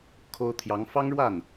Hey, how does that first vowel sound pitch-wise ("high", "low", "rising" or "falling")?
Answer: high